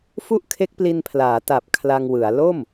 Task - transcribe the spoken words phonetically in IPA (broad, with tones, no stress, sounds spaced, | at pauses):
f u˥˩ ʔ kʰ e˦˥ k̚ p l i˧ n pʰ l aː˩˦ t a˨˩ p̚ kʰ l a˧ ŋ w ɯ˩˦ a̯ l o˥˩ m